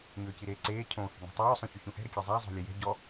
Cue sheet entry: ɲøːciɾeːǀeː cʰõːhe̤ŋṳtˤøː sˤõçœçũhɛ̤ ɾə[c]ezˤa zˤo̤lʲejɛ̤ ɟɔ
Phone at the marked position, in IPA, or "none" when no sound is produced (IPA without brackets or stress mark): kʲ